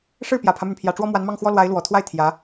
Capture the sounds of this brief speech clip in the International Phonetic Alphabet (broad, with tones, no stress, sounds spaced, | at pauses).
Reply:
ʂ ɻ̩˥˩ p j ä˨˩ pʰ ä˦ m y˩ n pʰ j ä˨˩ ʈ͡ʂ w ɔ˥ m w a˧˥ n m ɑ˥˩ ŋ x w ɔ˥ l w a˧˥ ɪ̯ l w ɔ˨˩ t̪ʰ w a˥˩ ɪ̯ t̪ʰ j ä˧˥